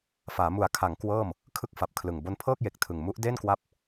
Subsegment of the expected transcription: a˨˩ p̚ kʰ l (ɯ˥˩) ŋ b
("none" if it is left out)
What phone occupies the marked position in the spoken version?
ɯ˨˩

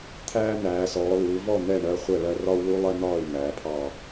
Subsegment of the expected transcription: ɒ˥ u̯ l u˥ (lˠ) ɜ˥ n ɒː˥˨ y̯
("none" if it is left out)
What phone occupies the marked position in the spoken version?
lˠ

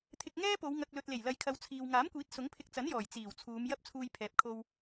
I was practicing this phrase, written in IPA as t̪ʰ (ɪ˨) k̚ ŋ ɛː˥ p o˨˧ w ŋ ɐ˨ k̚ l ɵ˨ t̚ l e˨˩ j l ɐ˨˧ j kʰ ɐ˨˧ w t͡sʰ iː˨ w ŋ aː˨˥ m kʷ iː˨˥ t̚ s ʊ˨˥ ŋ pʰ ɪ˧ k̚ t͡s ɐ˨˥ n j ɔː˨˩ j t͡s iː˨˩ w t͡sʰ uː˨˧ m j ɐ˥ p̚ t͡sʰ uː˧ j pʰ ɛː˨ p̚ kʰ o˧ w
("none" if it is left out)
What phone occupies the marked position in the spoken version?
ɪ˧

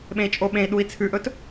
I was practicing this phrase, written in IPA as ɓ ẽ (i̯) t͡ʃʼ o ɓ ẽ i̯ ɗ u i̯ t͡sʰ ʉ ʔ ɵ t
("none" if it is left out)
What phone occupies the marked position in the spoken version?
i̯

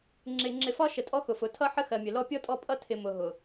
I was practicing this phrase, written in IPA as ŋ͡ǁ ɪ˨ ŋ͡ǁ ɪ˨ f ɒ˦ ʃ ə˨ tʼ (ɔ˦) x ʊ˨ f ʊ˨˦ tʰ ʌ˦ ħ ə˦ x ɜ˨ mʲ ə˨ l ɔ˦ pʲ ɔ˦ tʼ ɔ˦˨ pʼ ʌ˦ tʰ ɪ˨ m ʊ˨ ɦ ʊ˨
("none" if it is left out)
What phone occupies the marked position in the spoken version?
ɔ˦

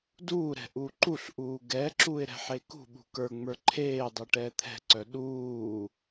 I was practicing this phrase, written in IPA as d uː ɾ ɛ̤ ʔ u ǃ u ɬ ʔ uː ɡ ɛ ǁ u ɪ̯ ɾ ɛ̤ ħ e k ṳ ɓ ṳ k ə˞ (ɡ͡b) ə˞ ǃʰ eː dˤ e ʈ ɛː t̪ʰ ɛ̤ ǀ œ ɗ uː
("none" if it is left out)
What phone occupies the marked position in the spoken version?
ŋ͡m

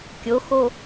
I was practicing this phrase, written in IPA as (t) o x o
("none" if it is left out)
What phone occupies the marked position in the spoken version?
kʲ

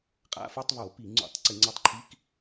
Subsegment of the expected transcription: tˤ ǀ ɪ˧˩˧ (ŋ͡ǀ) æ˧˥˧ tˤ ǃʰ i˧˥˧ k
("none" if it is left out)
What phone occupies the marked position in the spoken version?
ŋ͡ǀ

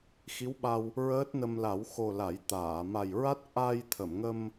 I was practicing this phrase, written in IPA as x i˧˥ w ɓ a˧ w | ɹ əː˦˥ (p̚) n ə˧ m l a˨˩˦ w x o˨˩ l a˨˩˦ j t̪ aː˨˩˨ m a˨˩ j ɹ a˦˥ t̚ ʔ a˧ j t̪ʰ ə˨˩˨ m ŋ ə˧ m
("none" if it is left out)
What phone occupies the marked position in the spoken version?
t̚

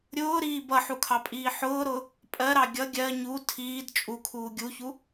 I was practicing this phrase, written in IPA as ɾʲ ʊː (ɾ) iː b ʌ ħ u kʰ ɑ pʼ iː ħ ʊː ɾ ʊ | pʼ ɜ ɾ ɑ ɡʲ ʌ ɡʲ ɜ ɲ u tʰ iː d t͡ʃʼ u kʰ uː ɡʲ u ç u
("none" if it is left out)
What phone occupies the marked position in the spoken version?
ɾ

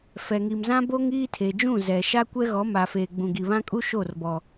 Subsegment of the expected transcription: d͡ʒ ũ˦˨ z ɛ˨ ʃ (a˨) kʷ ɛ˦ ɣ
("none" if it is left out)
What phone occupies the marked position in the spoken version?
a˦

